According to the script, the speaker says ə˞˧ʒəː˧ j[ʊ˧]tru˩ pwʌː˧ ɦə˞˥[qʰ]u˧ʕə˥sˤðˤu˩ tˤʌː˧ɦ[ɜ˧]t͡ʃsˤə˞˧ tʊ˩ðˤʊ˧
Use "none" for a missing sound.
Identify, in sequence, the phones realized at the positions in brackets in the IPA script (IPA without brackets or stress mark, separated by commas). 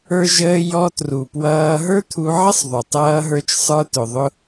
ɔ˧, t̪ʰ, ə˞˧